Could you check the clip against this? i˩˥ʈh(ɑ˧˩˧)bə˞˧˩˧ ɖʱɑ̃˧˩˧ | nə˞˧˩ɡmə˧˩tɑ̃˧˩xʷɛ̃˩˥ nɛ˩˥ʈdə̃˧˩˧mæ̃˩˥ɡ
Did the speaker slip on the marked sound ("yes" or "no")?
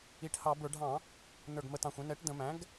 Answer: no